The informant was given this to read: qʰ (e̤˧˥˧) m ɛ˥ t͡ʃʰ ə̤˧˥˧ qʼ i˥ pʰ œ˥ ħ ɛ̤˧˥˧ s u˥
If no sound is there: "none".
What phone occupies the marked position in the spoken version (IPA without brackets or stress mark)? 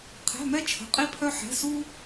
ɛ̤˧˥˧